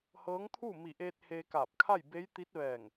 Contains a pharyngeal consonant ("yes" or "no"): no